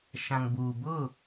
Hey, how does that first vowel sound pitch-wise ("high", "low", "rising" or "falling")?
low